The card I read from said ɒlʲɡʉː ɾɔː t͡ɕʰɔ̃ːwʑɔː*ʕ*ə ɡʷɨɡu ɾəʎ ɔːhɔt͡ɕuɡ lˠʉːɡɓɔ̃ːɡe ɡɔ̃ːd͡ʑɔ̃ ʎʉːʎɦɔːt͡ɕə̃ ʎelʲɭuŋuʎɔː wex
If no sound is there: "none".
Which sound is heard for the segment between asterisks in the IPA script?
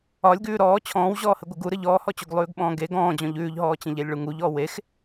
h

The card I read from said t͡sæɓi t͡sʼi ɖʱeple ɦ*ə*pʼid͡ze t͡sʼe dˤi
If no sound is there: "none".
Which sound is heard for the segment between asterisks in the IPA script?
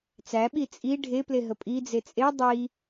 ə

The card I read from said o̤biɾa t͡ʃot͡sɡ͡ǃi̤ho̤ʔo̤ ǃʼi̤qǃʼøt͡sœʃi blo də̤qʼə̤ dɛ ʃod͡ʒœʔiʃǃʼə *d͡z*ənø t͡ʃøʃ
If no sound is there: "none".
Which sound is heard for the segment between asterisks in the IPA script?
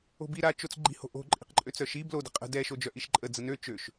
d͡z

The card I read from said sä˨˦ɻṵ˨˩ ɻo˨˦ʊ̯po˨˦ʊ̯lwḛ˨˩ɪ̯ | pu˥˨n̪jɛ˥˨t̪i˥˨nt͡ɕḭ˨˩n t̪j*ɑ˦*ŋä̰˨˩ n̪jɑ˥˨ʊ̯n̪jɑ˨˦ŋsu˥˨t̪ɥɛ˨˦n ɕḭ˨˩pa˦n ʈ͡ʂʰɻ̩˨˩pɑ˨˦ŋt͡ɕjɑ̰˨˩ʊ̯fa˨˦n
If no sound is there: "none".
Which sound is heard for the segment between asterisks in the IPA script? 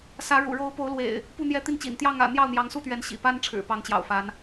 ɑ˥˨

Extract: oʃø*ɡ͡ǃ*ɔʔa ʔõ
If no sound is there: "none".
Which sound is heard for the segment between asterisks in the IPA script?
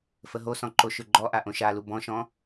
ɡ͡ǃ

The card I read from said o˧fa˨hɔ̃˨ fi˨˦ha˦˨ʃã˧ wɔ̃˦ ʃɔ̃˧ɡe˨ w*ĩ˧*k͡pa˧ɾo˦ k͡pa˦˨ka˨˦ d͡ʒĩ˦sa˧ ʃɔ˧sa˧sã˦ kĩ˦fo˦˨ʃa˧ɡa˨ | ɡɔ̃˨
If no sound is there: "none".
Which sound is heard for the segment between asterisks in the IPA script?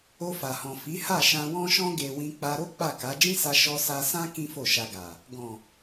ĩ˧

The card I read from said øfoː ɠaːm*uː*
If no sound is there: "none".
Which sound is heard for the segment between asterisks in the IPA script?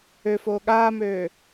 øː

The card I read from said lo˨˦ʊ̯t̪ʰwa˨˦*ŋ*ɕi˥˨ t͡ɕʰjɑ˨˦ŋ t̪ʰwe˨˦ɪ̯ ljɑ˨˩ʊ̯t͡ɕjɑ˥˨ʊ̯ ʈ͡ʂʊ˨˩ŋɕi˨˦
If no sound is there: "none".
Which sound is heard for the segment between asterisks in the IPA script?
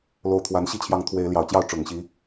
n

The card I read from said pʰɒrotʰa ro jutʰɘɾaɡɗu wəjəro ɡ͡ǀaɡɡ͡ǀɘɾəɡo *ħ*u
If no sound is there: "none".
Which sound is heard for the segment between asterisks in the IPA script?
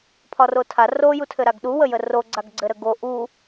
ʔ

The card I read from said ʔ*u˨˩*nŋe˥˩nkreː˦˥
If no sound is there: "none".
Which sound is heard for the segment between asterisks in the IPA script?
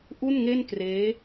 u˥˩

